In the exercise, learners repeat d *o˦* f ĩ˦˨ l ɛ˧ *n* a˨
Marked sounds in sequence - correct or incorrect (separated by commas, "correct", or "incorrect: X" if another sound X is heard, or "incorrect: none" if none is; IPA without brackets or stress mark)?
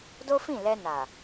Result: correct, correct